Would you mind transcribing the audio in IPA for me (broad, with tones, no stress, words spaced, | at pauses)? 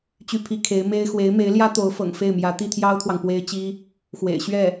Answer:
t͡ɕy˥˩pʰi˥ kʰe˧˥ɪ̯me˥ɪ̯ xwe˧˥ɪ̯me˧˥ɪ̯ljä˥t̪o˧˥ʊ̯ fɤ̰˨˩ŋfe˥˩ɪ̯mjä˧˥ t̪i˥˩t̪ʰjɑ˥ʊ̯t̪ʰwɑ˨ŋ pwe˥ɪ̯t͡ɕi˥ | xwḛ˨˩ɪ̯ɕɥɛ˥˩